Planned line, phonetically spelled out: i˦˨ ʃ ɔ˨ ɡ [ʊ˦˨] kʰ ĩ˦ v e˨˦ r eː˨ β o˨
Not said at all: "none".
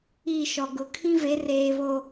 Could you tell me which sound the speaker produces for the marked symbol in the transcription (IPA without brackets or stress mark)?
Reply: ʊ˨